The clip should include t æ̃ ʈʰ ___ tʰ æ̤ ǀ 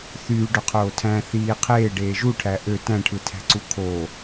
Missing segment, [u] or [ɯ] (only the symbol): ɯ